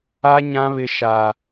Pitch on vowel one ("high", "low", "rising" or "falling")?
high